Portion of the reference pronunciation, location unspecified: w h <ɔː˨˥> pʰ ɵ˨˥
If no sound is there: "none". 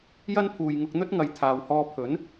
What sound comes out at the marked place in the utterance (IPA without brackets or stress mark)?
ɔː˧